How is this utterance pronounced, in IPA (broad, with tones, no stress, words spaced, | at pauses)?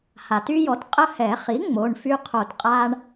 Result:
ha˩ty˦jɔ˩˥t qʼə˦ hɛ˨˩˦χi˩˥ ŋ͡mo˩˧˩ɳfy˦qʰo˧˩tqʼa˦ɳ